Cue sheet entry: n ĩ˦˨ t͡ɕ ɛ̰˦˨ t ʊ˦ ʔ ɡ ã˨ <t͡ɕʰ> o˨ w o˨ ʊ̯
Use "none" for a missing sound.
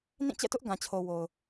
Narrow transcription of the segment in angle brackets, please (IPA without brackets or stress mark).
t͡ɕʰ